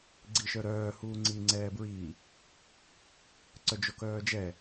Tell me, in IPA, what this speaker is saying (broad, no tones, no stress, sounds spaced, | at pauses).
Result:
ɡ͡ǀ i ʃ œ ɾ œː h uː ŋ͡ǀ i ŋ͡ǀ ɛː b ɹ iː | ǀ œ d͡ʒ o k œː d͡ʒ ɛ